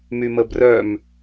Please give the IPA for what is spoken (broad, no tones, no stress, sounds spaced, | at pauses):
m y m ə b r œ m